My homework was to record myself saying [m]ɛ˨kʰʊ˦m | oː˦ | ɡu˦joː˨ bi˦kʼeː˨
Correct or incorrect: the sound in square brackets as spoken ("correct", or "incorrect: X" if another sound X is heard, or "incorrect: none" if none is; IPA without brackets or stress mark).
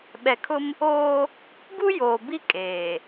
incorrect: ɓ